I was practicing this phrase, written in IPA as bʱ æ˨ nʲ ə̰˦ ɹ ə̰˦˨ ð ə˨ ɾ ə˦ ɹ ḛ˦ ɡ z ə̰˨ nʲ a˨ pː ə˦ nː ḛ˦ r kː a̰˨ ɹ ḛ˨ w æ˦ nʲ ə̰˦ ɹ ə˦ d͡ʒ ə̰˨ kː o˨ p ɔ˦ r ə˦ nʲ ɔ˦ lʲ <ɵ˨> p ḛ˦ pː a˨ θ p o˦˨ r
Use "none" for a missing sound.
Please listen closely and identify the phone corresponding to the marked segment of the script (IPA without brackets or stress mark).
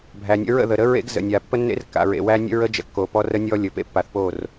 ɵ˨